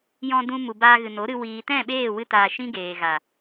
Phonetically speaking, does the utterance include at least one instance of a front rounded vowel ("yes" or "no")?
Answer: no